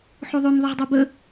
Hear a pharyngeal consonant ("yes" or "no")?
yes